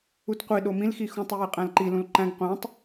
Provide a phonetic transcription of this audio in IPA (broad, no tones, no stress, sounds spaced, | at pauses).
u t qʷ i ɗ o m ĩ l x i x ũ tˤ o j e qʼ æ̃ l ǃ i l ũ l ǃ æ̃ ɡ qʷ æ̃ tˤ